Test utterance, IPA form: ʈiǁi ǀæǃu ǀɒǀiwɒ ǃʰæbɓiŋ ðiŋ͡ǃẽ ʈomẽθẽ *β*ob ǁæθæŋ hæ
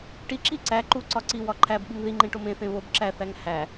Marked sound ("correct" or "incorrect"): correct